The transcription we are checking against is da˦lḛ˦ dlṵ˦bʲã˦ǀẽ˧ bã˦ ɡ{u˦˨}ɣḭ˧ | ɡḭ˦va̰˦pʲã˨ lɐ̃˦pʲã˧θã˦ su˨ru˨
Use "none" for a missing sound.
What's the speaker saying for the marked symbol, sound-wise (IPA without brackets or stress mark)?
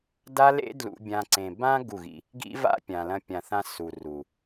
u˦˨